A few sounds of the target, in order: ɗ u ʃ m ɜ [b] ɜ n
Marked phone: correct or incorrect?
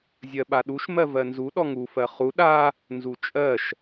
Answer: incorrect